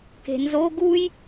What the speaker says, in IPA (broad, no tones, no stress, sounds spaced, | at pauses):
k e̤ n z o ɡ u j